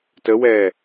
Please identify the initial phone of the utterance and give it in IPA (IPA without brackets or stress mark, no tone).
t